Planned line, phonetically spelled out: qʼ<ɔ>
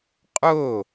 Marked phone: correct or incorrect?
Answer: incorrect